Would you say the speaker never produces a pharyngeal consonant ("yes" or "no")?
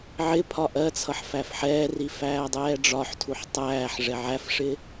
no